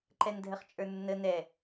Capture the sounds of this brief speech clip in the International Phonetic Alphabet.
ǃ ɛ n dʱ ə χ t͡ʃʼ ə˞ nː ə n ɛ

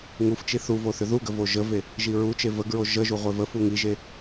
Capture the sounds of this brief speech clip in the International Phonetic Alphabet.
ŋ u f t͡ʃ i θ u v o θ ʏ ð u ɡ ə v o ʒ ə v e | ʒ i ɹ u t͡ʃ e v ə ɡ ɹ o ʒ ə ʒ u ʁʷ e v ə f u ŋ i ʒ e

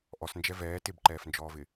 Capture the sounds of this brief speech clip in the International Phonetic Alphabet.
ʔ ɔ s n d͡ʒ ɛ v ɛː t ɪ b ǃ ɛː f n d͡ʒ ɔː v ɪ

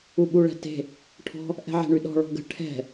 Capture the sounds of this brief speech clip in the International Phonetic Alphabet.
u ɓ u ɭ ɛ̤ t e̤ | ʈʰ ɔ̤ | ʔ ɛ̤ ʕ e̤ ɳ y ɗ ɔ̤ ɭ ɔ̤ ɡ ə̤ ʈʰ ɛ̤

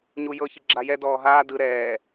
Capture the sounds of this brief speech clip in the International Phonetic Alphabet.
ɲ u j ɤ ç i ɡ͡ǁ a j ɛ d ɔː ɦ aː d ɯ ɾ ɛː

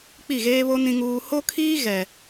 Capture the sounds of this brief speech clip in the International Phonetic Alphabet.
k͡p i˦˨ ɣ eː˦ β o˦ n ĩ˦ ŋ uː˦ h o˦ kʰ iː˦ ɣ ɛ˨

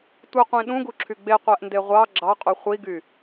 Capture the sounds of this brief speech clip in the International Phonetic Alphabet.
tʷ ɯ qʷ ĩ ɗ ũ ɡ u ǁʰ y ɡ͡b e qʷ æ ʔ n d e ʁʷ ɑ ɡ͡ǁ ɑ qʼ u χʷ i ɡ y

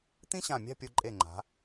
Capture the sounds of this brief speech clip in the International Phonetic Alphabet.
t̪ ĩ˥ ɕ ã˧˩ mʲ a̤˥˧ pʲ o˧ ǃʼ e˧˩ ŋ͡ǃ a̤˩˧

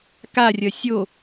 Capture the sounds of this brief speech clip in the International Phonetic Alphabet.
k a rʲ ɐ sʲ o

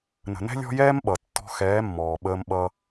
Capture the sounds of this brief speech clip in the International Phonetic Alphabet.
n ə̤˨ n ɛ̤˦ lʲ ɔ̤˦ j ɛː˦ m ɓ ʌ˨ tː ɔ̤˧ x ɛː˨˦ mː ɔː˨ ɓ əː˧ m ɓ ʌ˧

